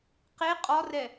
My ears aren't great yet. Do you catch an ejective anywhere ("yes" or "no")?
yes